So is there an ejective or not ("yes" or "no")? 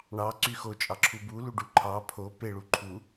yes